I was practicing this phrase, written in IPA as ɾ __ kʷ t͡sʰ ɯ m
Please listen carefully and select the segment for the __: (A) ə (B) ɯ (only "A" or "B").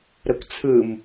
A